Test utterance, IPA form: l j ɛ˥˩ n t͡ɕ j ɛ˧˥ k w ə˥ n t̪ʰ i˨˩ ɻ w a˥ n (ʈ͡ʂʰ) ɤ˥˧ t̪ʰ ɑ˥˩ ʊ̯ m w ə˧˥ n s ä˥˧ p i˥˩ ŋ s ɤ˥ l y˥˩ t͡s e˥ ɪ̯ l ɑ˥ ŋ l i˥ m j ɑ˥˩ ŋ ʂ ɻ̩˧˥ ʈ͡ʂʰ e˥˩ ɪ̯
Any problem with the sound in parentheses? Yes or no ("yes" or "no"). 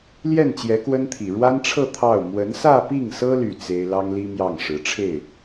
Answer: no